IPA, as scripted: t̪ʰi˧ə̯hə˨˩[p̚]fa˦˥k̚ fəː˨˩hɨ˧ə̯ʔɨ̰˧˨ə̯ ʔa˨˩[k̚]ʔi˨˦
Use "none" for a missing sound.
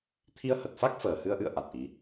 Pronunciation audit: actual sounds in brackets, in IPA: t̚, t̚

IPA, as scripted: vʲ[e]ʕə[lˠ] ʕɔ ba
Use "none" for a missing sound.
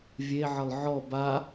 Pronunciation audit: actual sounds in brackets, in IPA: e, lˠ

